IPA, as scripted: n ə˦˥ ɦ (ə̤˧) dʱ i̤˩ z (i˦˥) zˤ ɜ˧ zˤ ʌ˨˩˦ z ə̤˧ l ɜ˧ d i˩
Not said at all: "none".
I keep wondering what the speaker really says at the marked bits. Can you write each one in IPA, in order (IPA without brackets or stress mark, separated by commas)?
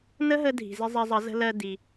ə˧, ɪ˦˥